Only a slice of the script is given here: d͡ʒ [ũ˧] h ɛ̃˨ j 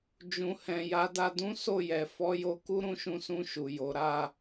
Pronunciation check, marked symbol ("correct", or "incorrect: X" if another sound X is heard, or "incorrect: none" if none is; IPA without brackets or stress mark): incorrect: ũ˨